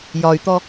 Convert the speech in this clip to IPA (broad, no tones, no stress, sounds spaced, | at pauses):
j ɒ y̯ t̪ ɔ